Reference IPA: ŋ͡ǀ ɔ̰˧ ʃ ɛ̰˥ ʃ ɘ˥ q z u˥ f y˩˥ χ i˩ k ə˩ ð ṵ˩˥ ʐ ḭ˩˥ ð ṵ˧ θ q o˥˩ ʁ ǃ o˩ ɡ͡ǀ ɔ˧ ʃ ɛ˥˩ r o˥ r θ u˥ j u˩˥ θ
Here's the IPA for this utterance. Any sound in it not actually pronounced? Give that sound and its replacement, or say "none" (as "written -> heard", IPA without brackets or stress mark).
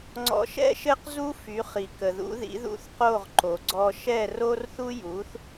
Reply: ʐ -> ð